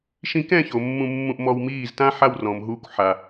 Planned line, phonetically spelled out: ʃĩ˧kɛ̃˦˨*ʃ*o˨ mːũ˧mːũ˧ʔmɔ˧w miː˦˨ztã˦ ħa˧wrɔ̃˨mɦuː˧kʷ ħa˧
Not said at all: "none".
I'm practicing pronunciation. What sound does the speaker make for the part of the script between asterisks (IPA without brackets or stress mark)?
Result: ç